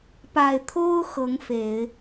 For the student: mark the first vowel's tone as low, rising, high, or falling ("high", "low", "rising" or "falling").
low